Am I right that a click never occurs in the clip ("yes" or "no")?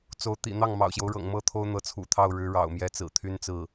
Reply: yes